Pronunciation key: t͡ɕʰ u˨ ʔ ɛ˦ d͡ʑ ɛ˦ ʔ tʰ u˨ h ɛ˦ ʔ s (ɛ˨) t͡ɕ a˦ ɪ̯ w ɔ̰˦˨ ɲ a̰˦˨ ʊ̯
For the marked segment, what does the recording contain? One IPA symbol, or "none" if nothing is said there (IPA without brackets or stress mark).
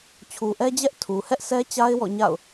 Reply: ɛ˦